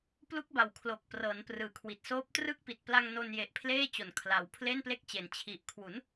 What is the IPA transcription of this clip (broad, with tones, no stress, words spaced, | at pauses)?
plu˦˥k̚ba˨˩w kʰlo˨˩k̚ prɤː˩˦nprɯː˨˩kʰwi˨˩t̚soː˦˥p̚ trɯ˥˩k̚ pi˨˩t̚ pla˧ŋ no˧nje˨˩ʔ pʰleː˥˩t͡ɕo˨˩n kʰla˩˦wpʰle˥˩nple˦˥k̚t͡ɕe˩˦n t͡ɕʰi˨˩ʔkʰwu˩˦n